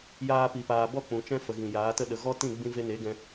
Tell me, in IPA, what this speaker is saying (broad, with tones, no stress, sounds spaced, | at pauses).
j aː˦ p i˨ p aː˨ b ɔ˦˨ k͡p ũ˨ t͡ʃ ɛ̃˦ f ə˨ ɣ ĩ˨ j aː˨˦ t ə˦ ɗ ə˨ ɣ ɔ˦ t ĩ˦˨ ɡ͡b ĩ˦ v e˦ n e˨˦ ɡ ɛ̃˧